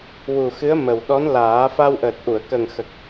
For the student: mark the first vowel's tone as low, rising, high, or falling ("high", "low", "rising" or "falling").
low